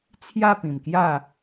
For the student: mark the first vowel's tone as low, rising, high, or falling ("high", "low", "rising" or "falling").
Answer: falling